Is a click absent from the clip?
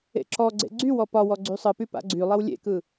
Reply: no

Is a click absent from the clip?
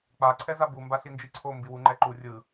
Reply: no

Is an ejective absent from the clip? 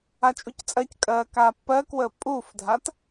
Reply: no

